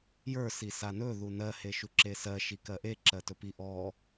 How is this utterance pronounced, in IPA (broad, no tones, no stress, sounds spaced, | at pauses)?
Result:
j ə˞ s i s a n ɵ ð u n ɜ h e ʃ u ǁ e s ɜ ʃ i k ɜ ʔ e ǁ ɜ t ɵ p i ʔ ɔ